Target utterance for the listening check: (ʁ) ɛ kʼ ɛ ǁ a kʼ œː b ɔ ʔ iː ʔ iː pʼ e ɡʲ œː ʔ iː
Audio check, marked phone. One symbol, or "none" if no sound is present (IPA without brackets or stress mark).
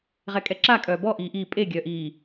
ʁ